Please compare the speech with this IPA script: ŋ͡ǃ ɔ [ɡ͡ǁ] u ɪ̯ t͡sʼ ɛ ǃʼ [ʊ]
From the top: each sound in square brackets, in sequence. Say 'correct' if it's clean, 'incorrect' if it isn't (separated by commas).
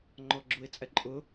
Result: correct, correct